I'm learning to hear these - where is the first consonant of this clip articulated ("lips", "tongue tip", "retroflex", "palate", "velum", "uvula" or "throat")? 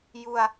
palate